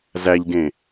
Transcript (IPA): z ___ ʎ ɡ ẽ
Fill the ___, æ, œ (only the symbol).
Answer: æ